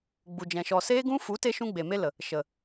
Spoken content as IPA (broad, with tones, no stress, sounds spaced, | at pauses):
ɡ͡b u˨ d͡ʒ ɛ̃˨ ʃ ɔ˨ s eː˧ ɡ ũ˧ f u˨˦ t e˧ ʃ ũ˦ ɡ͡b e˨ m e˦ l ə˨ | ʃ ə˨